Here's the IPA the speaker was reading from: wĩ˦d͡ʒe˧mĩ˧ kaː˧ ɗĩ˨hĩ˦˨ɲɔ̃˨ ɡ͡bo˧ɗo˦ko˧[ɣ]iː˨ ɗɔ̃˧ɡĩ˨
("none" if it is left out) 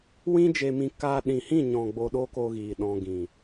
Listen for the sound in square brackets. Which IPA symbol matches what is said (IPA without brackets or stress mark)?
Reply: ɣ